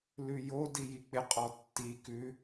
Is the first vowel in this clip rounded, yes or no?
yes